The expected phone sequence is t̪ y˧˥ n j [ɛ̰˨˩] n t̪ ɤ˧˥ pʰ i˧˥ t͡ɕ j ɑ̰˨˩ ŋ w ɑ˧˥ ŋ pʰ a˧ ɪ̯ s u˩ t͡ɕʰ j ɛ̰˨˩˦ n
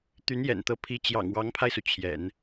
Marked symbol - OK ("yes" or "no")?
yes